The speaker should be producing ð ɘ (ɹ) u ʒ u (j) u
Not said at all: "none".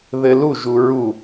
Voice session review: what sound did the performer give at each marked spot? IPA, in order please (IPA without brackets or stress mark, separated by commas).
l, ɹ